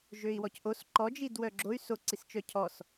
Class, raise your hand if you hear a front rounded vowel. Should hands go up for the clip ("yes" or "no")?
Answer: yes